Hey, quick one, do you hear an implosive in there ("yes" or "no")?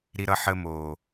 no